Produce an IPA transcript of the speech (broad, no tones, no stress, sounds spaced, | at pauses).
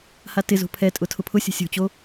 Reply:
h a t ɪ z o̤ pʰ ɛ tʼ ʊ tʰ ʊ pʰ ʊ sʲ o̤ sʲ o̤ t͡ɕ o